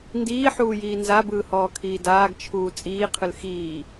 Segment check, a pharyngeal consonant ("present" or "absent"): present